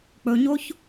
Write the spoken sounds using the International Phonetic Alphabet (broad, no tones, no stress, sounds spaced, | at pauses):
k͡p ɵ ɲ o ç